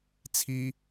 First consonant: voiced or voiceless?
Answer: voiceless